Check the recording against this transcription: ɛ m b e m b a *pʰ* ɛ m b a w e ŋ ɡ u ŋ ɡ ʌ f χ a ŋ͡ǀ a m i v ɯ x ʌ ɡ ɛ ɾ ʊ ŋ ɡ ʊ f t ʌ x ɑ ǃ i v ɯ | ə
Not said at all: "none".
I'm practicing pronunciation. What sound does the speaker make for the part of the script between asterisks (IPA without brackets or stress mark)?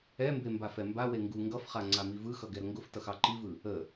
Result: f